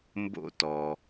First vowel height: mid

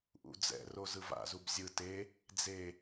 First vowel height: high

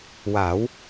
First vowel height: low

